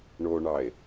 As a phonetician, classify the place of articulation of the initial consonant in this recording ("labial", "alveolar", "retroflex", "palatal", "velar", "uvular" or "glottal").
retroflex